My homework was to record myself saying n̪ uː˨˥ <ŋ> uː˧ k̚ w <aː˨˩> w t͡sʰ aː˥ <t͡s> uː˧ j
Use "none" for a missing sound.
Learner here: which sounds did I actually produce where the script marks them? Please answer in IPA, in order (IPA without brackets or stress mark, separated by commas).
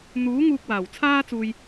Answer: ŋ, aː˨˩, t͡s